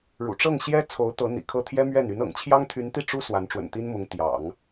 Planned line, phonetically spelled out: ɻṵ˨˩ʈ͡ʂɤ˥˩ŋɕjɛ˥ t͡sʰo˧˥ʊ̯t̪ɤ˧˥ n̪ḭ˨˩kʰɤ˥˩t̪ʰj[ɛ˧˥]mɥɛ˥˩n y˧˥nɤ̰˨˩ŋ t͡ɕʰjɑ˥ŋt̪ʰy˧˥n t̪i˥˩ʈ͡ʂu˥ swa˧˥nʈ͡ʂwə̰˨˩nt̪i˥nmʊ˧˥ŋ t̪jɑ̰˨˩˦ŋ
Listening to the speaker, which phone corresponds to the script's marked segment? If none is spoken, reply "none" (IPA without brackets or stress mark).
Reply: ɛ˥